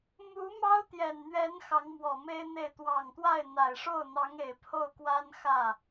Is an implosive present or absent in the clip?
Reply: absent